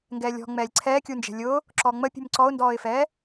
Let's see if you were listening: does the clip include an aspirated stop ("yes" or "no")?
yes